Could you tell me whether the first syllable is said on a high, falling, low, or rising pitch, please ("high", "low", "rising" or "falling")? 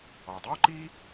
low